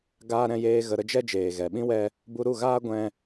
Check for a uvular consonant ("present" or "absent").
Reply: absent